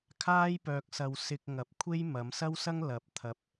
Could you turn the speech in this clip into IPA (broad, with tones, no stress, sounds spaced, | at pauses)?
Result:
kʰ aː˥ j p œː˧ k̚ s ɐ˧ w s ɪ˧ k̚ ŋ ɐ˨ p̚ kʷʰ e˥ j m ɐ˨˧ m s ɐ˥ w s ɐ˥ ŋ l ɐ˨ p̚ t̪ʰ ɐ˧ p̚